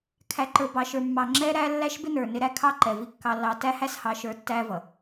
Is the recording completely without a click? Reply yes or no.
no